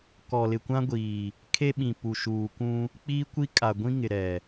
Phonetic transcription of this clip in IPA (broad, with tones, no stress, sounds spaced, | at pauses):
k ɔ˨ l ɪ˨ kʷ ã˦ ɡʷ iː˨ | kʰ e˦ ɓ ĩ˨ p u˨ ʃ uː˨ kʷ ũ˦ | k͡p iː˦ kʷ i˦ kʼ a˨ ɡʷ ĩ˦ ŋ ɪ˨ ɾ ɛ˨